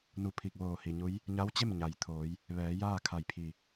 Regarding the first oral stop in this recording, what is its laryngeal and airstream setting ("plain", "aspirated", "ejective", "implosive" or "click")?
aspirated